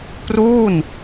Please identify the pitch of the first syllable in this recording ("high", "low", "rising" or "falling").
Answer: falling